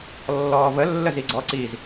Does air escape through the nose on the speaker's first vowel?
no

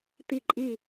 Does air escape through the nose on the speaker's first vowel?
no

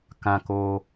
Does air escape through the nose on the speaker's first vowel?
yes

